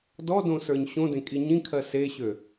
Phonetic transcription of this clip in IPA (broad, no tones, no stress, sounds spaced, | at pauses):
d ɔ d õ s ə˞ ɲ ɕ õ d ẽ kʼ i ɲ ĩ kʰ ɜ s e ɕ ø